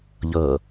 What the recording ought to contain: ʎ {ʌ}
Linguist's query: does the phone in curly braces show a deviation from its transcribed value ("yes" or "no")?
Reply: no